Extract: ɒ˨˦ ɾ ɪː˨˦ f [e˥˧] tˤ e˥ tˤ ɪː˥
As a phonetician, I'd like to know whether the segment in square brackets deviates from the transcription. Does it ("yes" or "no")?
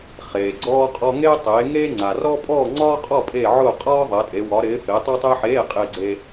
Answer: yes